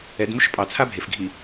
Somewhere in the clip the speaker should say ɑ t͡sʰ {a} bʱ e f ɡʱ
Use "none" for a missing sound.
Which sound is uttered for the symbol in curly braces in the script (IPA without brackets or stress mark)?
a